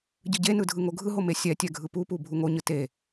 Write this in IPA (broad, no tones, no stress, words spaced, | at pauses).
ɟɯɟenɯ dʱɯŋoɡʱɯɦo mesʲɛtʲɛ ɡʱɯpupu bʱuŋoɲɯ te